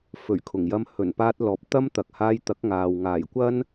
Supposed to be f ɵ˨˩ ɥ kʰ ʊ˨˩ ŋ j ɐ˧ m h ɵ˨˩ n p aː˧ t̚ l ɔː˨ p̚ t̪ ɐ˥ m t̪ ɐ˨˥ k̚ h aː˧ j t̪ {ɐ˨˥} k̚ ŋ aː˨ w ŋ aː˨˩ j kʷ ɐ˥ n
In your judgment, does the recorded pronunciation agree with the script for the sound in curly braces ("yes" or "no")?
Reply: yes